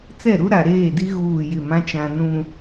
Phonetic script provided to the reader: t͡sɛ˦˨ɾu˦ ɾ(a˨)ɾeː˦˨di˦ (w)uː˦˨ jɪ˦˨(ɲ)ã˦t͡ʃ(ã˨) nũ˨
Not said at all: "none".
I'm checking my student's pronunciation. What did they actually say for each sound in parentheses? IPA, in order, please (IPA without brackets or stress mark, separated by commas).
a˨, ɣ, m, ã˨